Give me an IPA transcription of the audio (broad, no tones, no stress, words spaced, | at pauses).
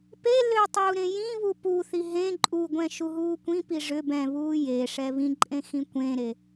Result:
pelʏː tˤuːɾẽjĩβu puθi ɦẽ ǃʼuɡʷɛ̃ ʃuɦuːkʷĩpi ʐʏ bɛ̃βuː je ʂɛβĩǃʼẽ xĩkʷẽɾe